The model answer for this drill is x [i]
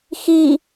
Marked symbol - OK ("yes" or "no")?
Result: yes